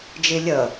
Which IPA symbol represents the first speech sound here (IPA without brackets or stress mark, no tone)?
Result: d͡ʒ